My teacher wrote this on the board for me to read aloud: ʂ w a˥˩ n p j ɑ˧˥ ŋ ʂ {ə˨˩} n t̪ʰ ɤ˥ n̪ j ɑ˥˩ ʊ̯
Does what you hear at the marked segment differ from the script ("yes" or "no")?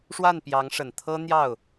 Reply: no